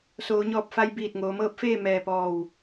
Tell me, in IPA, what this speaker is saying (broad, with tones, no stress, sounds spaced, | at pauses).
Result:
s oː˩˧ ɲ ɔː˧˩ p̚ f a˧ j b iː˧˩ t̚ ŋ oː˩˧ m ɤː˧˥ p̚ f eː˥˨ m ɛː˧˩ p ɔː˧˩ w